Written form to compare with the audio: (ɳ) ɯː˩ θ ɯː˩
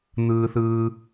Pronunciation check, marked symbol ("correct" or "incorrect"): incorrect